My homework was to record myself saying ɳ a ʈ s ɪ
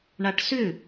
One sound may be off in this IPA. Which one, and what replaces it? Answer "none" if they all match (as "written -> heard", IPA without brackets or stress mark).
ɪ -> ʏ